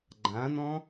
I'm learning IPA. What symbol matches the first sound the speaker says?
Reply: ɡ͡ǃ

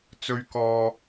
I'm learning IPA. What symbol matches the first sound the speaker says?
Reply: t͡s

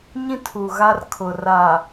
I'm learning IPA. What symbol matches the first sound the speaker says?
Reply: ɲ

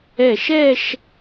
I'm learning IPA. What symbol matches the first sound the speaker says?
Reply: ɛ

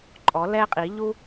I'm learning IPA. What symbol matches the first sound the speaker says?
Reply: ǃʼ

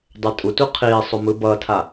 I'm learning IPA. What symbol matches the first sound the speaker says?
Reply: dˤ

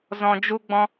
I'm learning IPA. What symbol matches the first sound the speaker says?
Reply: z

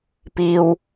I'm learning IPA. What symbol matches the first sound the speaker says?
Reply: p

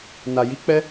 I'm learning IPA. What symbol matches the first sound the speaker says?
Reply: n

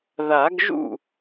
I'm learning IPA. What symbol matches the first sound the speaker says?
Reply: ð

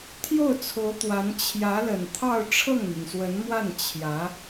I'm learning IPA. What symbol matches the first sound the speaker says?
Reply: t̪ʰ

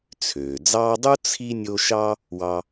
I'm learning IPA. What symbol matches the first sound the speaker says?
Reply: t͡sʰ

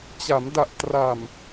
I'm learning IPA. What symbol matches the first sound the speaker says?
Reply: t͡ɕ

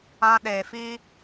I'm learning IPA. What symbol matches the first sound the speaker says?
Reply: ã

